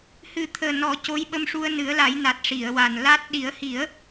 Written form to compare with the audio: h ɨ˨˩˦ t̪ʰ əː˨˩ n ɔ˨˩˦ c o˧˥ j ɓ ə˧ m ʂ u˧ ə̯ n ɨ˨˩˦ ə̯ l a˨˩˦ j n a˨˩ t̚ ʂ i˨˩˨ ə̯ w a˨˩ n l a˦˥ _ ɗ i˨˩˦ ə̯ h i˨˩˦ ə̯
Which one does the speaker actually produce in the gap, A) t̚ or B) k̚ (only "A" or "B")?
A